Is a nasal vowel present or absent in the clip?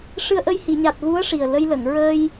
absent